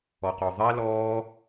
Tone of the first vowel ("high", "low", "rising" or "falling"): low